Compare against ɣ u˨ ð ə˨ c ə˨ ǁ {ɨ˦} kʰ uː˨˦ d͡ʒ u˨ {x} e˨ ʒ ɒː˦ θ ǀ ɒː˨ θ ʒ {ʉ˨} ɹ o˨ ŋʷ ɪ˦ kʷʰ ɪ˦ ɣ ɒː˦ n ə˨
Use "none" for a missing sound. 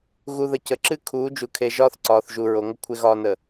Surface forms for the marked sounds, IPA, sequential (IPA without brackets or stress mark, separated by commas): ɨ˦, kʰ, u˨